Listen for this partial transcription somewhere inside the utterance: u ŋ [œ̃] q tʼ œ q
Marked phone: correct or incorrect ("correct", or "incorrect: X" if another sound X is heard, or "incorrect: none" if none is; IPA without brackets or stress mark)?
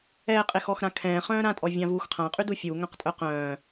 correct